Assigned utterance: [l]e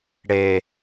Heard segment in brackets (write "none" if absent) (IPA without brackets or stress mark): ɽ